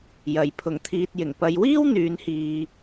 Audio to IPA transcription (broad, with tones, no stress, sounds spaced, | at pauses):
j ɐ˨ j pʰ ʊ˨˩ ŋ t̪ʰ iː˨ t̚ j ɪ˨˩ ŋ p ɐ˨˧ j w iː˥ w n̪ yː˨˧ n h iː˨